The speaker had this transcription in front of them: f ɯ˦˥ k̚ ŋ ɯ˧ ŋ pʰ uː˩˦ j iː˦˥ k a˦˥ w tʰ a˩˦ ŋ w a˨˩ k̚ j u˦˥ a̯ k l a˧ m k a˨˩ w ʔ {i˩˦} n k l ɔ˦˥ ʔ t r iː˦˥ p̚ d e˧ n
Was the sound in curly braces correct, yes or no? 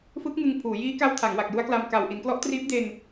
yes